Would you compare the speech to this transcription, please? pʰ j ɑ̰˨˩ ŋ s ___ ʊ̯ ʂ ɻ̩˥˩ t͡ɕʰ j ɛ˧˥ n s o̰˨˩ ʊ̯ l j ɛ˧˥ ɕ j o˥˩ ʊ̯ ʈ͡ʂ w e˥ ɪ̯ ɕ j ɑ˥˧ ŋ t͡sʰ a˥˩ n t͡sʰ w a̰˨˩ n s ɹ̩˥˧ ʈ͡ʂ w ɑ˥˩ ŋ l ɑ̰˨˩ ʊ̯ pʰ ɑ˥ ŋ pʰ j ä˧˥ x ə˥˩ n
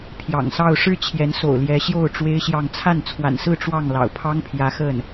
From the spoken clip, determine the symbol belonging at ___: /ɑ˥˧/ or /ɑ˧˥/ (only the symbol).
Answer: ɑ˥˧